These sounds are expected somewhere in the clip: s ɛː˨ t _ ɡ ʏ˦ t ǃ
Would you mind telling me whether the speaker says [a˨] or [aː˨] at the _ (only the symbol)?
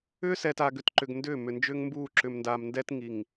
aː˨